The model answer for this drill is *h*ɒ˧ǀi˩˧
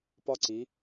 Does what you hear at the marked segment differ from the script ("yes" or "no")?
yes